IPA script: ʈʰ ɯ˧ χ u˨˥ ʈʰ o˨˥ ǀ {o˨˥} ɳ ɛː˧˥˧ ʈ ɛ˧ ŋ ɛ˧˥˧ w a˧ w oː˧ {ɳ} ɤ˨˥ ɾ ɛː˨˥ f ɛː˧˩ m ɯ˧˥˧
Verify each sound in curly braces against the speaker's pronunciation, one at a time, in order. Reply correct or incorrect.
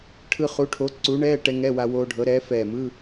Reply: incorrect: u˨˥, incorrect: ɖʱ

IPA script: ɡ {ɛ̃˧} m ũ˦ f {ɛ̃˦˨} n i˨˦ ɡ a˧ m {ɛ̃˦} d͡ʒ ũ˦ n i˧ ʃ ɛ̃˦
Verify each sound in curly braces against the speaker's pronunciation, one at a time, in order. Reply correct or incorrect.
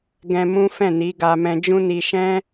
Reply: correct, correct, incorrect: ɛ̃˧

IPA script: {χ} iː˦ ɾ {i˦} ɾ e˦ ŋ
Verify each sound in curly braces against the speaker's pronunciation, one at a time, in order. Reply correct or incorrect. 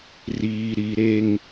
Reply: incorrect: r, correct

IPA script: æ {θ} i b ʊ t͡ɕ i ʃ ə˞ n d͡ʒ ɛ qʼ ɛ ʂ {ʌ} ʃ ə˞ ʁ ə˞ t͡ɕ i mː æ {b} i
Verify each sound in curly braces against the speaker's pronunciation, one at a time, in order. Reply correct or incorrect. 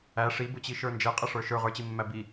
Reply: incorrect: ʂ, incorrect: ə˞, correct

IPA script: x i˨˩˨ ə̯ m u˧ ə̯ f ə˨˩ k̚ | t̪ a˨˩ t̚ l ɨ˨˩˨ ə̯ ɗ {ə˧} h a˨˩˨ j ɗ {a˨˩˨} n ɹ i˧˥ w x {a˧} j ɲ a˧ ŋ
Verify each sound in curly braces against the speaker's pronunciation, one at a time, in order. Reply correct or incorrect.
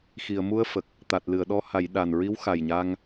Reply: incorrect: ɔ˧, incorrect: a˨˩, incorrect: a˨˩

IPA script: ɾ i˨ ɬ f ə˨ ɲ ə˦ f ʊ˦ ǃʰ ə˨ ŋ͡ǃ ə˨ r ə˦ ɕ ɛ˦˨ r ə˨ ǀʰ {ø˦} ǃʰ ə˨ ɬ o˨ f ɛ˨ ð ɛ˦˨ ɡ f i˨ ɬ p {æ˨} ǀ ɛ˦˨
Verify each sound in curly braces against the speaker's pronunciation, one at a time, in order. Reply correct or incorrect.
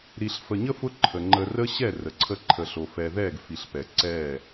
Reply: incorrect: ə˦, incorrect: ɛ˨

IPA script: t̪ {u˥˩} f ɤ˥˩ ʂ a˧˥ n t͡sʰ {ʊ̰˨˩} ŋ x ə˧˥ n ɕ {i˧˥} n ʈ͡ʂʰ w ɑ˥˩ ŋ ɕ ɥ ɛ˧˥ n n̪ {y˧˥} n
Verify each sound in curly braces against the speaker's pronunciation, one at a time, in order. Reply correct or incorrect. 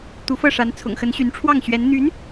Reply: incorrect: u˧˥, correct, incorrect: y˧˥, correct

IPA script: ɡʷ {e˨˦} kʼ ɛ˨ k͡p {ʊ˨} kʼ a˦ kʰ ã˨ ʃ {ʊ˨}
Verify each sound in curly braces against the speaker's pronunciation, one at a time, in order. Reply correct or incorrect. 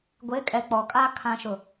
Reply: correct, incorrect: ɔ˨, correct

